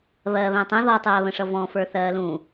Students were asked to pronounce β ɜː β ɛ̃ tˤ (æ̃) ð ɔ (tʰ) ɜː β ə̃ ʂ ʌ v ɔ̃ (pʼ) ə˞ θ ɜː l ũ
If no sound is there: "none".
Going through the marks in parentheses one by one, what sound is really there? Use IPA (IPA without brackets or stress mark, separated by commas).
ə̃, tˤ, f